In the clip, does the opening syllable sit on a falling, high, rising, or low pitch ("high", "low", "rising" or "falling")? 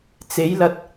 rising